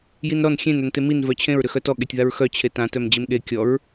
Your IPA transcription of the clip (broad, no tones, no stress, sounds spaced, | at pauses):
j i n ɾ ɔ n xʲ ẽ n œ n t e m i n v œ t͡ɕʰ ẽ ɹ ɾ ʏ x œ t ɔ ɠ e tʲ ð a ɹ x œ t͡ɕʰ e t ã t œ m d͡ʑ e m ɠ e kʲ ɔ ɹ